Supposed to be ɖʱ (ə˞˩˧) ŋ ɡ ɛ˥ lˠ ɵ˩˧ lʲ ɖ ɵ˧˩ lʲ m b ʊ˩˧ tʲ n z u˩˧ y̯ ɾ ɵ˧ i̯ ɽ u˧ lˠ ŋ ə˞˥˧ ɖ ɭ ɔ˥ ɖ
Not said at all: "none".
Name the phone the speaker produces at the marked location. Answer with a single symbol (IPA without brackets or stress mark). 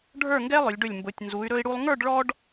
ə˞˥˧